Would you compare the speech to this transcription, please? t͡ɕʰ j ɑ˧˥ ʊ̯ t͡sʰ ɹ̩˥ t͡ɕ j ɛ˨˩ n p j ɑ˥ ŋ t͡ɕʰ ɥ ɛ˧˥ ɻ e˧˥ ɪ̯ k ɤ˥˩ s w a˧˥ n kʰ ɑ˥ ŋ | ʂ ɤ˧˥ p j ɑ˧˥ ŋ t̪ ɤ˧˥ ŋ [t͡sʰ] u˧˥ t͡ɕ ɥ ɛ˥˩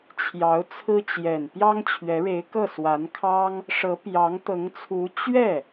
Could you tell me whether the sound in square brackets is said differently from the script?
no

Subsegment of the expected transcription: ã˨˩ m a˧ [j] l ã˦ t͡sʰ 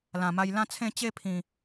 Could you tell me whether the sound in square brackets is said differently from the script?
no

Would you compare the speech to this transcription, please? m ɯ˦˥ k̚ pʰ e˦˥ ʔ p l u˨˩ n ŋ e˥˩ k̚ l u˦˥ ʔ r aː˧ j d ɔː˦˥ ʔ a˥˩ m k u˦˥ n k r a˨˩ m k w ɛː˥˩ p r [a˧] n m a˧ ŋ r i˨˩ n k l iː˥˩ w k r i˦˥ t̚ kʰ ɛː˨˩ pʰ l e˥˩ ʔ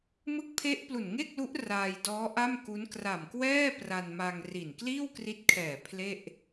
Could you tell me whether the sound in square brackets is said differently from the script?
no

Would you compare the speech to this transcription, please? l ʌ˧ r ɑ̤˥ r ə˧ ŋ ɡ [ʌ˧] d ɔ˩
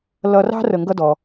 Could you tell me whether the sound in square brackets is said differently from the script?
yes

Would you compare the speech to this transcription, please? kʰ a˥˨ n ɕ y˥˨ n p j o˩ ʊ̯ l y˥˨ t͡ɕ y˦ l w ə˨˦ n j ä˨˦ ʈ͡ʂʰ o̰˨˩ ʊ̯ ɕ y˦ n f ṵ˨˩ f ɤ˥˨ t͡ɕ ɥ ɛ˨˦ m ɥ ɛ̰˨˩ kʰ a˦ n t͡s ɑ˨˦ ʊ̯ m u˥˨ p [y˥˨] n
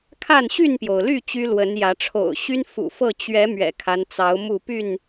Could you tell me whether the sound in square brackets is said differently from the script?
no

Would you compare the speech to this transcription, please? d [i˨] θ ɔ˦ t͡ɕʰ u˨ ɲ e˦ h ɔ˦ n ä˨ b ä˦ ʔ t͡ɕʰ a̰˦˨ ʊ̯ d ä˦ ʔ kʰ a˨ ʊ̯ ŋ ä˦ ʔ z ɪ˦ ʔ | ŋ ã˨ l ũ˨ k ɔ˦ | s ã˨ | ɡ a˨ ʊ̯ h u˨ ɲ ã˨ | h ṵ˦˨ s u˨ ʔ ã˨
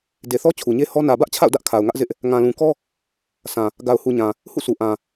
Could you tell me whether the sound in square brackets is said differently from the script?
yes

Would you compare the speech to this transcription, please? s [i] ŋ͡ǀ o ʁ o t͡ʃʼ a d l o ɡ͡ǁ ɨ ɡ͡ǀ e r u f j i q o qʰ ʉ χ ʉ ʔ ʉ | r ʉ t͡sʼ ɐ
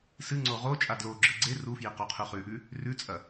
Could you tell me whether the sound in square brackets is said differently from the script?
yes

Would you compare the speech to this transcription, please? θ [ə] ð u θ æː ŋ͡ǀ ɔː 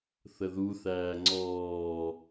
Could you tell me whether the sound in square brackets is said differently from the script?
no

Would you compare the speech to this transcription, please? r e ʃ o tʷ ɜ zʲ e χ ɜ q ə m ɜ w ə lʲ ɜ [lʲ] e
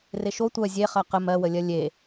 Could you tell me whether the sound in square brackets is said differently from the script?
no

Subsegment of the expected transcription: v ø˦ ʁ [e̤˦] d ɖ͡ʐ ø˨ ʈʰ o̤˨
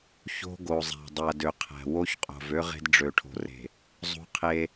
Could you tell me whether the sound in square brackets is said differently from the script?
no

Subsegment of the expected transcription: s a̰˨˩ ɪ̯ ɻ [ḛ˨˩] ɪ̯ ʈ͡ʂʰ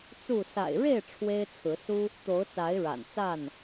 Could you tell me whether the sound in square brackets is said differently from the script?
yes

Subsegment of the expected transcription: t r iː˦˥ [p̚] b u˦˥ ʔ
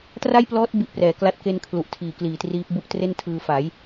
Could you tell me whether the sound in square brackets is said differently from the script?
no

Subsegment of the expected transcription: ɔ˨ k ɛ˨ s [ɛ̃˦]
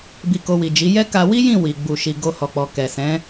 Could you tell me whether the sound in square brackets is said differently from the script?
yes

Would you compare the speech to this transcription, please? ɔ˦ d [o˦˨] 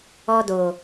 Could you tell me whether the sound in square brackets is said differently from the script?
yes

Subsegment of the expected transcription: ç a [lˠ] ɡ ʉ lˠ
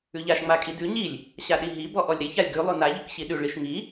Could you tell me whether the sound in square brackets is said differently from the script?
yes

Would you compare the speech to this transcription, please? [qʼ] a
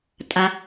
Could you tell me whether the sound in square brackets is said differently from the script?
yes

